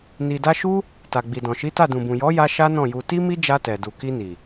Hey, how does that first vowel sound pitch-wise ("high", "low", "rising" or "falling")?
low